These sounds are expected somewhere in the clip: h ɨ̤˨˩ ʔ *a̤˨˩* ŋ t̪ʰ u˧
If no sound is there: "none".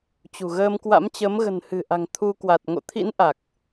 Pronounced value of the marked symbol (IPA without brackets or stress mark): a̤˨˩